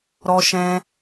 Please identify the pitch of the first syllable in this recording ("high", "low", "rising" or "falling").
high